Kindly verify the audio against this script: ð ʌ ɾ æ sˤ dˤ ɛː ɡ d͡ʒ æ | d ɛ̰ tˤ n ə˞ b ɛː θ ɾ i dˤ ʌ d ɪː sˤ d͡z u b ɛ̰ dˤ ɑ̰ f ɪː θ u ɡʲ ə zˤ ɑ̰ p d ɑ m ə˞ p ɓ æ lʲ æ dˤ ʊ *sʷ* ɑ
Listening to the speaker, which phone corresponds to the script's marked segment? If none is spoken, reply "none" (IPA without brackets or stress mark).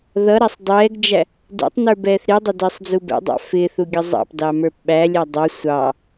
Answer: sʷ